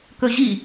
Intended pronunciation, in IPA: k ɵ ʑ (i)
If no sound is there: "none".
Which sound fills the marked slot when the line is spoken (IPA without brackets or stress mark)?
i